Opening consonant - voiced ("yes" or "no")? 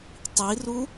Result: no